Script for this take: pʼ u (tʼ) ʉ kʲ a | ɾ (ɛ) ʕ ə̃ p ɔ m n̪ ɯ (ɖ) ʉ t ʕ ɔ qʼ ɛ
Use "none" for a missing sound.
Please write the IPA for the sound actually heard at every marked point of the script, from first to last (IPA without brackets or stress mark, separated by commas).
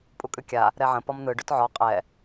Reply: kʼ, ɛ, ɖ